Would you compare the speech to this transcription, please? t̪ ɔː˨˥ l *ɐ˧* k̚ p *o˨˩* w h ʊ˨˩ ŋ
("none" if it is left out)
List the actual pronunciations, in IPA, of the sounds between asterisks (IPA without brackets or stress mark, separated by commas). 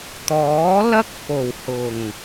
ɐ˥, o˨˩